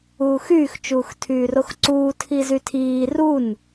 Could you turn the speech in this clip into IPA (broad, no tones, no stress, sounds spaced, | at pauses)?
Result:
uː x yː x t͡ʃ uː x tʰ yː r o x ǀ uː tʰ i z y tʰ iː r u n